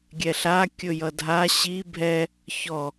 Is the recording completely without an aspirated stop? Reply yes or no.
yes